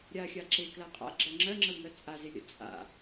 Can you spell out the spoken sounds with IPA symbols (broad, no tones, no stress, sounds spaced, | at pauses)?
ɾʲ a xʲ a ǁ e k l a qʼ a̰ ɡ͡ǁ ɜ ŋ͡ǁ ɜ ŋ͡ǁ ə w ŋ ɜ t͡sʼ a z e lʲ ə̰ t͡sʼ a̰